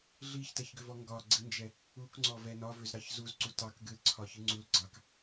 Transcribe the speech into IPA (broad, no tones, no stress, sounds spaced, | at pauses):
ɮ i ç t ɛ ç ɡ ʏ v ɔ ŋ ɡ ɒ ɡ͡ǀ i n d͡ʒ ɛ | u k ŋ͡ǀ ɔ v ɛ n ɒ v ʏ z ɾ ɑ ç z u z ǀ u t ɑ k ɡ ɨ l ǀʰ ɒ ç ɨ ŋ͡ǀ u l ɡ͡ǀ ɑ k